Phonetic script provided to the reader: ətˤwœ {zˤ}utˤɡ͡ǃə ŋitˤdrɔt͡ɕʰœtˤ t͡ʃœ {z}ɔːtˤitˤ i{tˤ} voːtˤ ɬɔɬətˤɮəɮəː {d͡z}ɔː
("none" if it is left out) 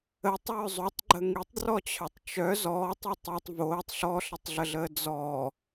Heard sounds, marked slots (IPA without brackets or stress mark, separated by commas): zˤ, z, tˤ, d͡z